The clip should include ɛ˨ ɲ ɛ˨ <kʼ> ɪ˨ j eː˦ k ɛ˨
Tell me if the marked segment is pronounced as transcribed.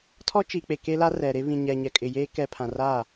yes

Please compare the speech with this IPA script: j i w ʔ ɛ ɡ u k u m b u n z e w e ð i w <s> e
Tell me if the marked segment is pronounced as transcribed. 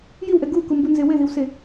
yes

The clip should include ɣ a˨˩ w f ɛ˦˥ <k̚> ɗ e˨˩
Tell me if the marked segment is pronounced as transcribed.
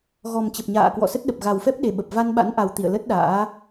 no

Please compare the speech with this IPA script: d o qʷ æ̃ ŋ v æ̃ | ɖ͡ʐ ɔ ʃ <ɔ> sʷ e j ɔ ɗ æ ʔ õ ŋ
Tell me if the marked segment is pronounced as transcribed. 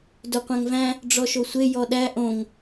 no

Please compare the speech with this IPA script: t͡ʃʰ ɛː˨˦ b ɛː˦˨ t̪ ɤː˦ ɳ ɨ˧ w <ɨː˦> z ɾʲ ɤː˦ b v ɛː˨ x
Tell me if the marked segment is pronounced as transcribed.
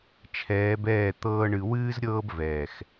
yes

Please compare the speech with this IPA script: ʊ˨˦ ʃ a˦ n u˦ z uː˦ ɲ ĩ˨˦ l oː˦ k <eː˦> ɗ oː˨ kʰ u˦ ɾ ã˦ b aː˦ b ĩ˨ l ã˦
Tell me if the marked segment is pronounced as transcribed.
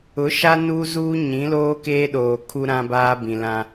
yes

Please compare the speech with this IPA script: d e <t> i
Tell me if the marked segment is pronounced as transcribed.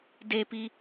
no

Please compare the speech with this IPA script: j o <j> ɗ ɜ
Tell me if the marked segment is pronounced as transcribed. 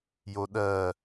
no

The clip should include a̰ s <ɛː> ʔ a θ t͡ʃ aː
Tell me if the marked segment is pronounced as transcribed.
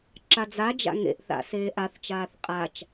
no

